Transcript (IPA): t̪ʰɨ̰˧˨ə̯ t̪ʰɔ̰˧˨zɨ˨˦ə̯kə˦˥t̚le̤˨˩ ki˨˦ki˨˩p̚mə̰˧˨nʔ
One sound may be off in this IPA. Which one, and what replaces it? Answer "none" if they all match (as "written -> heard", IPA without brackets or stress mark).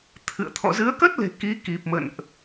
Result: none